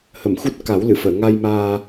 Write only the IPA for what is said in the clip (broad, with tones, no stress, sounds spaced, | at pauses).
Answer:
h ə˨˩˨ m x u˦˥ t̚ k a˨˩˦ w l ɨ˨˩˨ f əː˨˩˨ ŋ a˧ j m aː˧